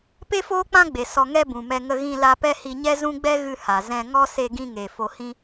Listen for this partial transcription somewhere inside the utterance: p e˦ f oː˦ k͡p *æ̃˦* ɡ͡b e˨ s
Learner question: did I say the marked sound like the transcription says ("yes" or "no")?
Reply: no